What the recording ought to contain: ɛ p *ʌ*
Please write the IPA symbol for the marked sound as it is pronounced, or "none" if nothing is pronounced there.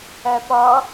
ʌ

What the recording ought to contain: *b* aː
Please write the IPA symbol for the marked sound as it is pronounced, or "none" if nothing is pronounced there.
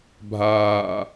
bʱ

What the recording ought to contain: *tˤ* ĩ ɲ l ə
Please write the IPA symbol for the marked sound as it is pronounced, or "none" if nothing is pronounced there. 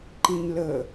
ǃ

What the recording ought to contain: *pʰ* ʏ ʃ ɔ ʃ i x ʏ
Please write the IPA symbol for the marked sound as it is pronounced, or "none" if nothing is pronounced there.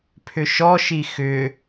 pʰ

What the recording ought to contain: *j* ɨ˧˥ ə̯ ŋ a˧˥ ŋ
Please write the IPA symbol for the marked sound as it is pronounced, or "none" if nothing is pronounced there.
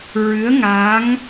ɹ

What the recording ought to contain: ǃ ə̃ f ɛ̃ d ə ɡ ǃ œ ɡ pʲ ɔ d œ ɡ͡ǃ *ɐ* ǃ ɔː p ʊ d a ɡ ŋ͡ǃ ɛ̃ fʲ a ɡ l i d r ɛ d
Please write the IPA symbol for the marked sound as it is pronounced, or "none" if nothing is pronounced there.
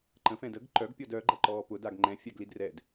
ɐ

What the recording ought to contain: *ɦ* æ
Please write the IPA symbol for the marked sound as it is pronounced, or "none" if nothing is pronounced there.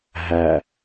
ɦ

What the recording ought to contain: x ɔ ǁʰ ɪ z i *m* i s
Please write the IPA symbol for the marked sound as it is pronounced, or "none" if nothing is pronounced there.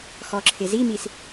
m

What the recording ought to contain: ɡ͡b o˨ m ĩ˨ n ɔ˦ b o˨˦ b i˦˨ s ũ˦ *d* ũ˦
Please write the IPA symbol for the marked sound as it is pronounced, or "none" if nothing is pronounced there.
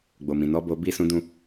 d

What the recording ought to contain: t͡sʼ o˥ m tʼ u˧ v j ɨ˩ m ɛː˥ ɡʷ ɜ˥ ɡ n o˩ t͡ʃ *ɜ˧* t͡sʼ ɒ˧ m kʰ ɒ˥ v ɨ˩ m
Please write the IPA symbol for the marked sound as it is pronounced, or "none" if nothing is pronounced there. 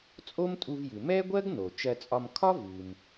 ɜ˧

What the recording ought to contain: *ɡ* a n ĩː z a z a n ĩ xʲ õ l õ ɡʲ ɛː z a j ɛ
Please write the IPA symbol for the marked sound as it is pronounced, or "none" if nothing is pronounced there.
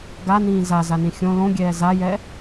ɡ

